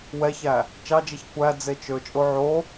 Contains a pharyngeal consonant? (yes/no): yes